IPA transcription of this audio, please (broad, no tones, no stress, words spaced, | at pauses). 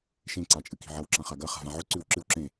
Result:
ʃẽ ǀat͡ʃʼɨki̤ʕɐw ǁãχaɡɐ χa̤vãʕɵ ǀʉwǁɨw ǁẽ